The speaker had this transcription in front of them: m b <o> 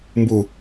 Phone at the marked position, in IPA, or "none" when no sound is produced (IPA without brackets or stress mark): u